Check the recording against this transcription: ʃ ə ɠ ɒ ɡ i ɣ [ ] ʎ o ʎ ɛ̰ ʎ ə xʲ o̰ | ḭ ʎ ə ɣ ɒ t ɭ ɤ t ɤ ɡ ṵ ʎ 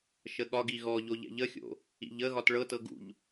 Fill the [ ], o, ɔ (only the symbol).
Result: ɔ